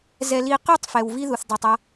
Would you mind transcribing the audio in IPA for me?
zɛ˨li˨qy˦˨tˤ fɛ˨wvi˦ðu˨θ dˤi˨tˤa˦

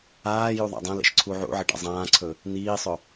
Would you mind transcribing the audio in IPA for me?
aːju ðˤa̰dˤãlḛʃ ǀʰuʕṵʕɪ ɖa̰zˤãːǀʰɵ | niːsˤɵ

